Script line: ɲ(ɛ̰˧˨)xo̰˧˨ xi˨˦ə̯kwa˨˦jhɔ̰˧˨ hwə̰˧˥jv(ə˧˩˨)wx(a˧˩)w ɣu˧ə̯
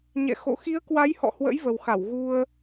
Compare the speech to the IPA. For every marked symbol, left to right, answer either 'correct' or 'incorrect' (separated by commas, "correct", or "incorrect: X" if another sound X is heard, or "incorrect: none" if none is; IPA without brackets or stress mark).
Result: correct, incorrect: ə˨˩, correct